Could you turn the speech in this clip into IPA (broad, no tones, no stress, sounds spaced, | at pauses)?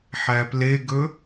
ħ æ p l e ɡ ɵ